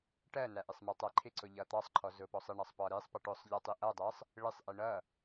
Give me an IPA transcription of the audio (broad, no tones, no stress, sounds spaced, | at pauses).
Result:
ʈ ɜ n æ ʔ ɪ sˤ m æ tˤ æ ǃʰ ɪ ǀ ʊ ʎ ʌ t̪ ɑ sˤ ǃʰ ɔ z ʊ p ɔ sˤ ɪ ɳ ɑ sˤ p ɒ ɾ i sˤ p ʌ ʈ ʊ sˤ ʎ ʌ tˤ i ʔ ʌ dˤ ɜ sˤ | ɭ ɪ sˤ ʔ i ɳ ʌ